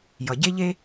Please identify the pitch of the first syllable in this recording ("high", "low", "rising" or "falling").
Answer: low